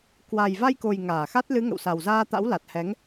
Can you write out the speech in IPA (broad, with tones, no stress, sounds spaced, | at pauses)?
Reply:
k w a˨˩ j v a˧ j k o˨˩ j ŋ aː˧˩ x a˦˥ t̚ l ɨ˨˦ ŋ ə̰˧˨ w s a˨˩ w z aː˧ t̪ a̰˧˥ w l a˨˩ t̚ h ɛ˨˦ ŋ